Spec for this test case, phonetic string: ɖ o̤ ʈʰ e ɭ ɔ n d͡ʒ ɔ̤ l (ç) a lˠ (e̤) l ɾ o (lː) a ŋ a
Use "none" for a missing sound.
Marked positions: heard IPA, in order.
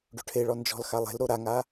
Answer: x, e̤, ɾ

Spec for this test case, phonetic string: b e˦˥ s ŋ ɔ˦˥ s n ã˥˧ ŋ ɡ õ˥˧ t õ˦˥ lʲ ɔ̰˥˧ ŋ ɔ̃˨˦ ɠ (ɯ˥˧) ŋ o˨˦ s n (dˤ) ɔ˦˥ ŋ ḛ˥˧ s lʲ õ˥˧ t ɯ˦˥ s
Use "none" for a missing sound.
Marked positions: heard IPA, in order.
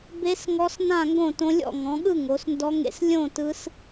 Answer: ɯ˥˧, d

